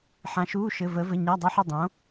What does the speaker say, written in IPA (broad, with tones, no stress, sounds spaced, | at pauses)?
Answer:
ħ ã˧˥ ʃ uː˧˥˧ ʃ ɘ˧˥˧ v əː˧˥ v ɘ˧˥˧ ɲ a˧˥˧ dˤ ɘ˧˥˧ ħ u˥˨ dˤ õ˧˥